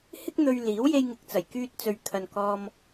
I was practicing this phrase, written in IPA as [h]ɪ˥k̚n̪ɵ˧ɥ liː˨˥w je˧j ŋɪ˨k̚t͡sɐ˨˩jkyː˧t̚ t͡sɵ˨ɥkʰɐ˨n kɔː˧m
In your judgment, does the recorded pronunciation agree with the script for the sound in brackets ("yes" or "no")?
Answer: yes